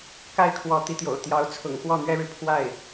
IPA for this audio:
ka˥˩ɪ̯ kʰwɔ˧˥t̪i˧˥t̪jo̰˨˩ʊ̯t̪jɑ˧˥ʊ̯ t͡sʰʊ̰˨˩ŋkwɔ˥˩n̪ɥɛ˥ɻɻ̩˨ pʰwa˥˩ɪ̯

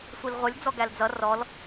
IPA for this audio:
sʷilʁʷʌlʲ d͡zɔɡæld͡zʌ rɔl

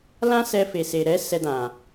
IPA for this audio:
lã˦sɛ˧fe˨se˨ ɾɛ˨˦ sɛ˧dã˨

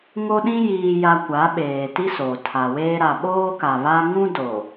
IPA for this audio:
ŋo˦ɗĩ˦ jiː˨ja˨ kʷa˨˦ɓeː˨ti˦ so˨ tʰa˨weː˦ ɾa˨ɓoː˦ka˨βa˦ ŋũ˦do˨

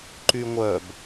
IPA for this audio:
ǃyŋʷœb

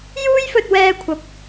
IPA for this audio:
juː˥jfɵ˧t̚wɛː˧kʷʰɐ˨˥p̚

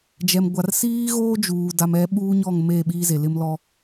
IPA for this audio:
d͡ʒɛ˨mɡʷa˨r siː˦ɣoː˦d͡ʒuː˨ da˨mɛ˨˦ɓuː˦ɲɔ˦˨ŋ me˦˨ ɓiː˦ze˨lɪ˦mlɔ˦

